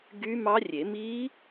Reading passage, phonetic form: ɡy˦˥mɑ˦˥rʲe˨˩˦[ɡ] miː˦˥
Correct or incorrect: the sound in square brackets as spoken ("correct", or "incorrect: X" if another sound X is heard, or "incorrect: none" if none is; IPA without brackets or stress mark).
incorrect: none